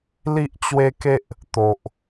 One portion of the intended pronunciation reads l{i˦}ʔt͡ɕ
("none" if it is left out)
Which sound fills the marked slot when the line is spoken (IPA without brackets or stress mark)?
i˦